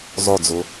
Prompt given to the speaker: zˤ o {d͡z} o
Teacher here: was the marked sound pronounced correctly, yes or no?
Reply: yes